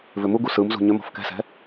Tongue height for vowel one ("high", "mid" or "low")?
high